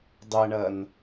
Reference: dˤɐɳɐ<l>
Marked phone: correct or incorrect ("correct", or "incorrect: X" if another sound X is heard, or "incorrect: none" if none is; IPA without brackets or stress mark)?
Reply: incorrect: n